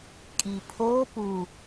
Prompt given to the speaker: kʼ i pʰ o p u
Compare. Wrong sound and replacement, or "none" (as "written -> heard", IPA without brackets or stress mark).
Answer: none